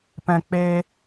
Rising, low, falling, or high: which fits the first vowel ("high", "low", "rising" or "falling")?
low